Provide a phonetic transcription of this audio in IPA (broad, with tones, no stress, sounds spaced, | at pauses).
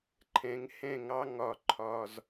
ǃʰ ɛ̃˨˦ ŋ h ɛ̃˦˨ ŋ ɑ˦ ŋ ɒ˦˨ ǃʰ ɒ˦ z